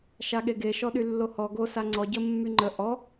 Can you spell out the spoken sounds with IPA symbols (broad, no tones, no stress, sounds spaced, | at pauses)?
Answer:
ʃ a ɠ e ɡ e ʃ ɔ ɗ y lː o h ɔ ɡ o s a ŋ͡ǀ ɔ ɟ ə mː y ŋ͡ǃ ə ʔ ɔ